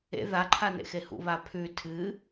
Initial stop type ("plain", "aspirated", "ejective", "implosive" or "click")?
click